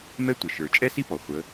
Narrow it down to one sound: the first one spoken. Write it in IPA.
m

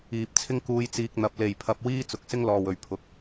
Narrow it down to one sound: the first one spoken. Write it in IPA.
iː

